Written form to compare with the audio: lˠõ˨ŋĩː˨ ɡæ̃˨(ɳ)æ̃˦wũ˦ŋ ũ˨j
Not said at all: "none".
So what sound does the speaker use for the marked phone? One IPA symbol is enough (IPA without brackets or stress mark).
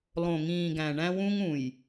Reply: ɳ